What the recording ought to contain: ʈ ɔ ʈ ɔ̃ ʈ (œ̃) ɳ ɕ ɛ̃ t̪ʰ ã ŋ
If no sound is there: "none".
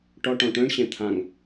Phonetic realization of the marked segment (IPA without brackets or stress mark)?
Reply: œ̃